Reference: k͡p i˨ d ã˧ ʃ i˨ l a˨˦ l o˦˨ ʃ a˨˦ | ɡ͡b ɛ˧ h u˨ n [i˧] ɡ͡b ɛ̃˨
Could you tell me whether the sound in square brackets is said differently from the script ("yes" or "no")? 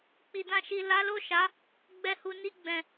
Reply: no